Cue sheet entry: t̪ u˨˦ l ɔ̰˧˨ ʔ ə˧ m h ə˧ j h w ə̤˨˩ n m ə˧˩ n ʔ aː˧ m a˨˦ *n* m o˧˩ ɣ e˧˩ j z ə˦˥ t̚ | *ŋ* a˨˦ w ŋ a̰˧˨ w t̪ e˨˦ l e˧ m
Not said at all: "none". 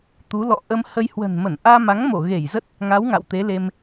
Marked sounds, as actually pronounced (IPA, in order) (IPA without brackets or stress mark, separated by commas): ŋ, ŋ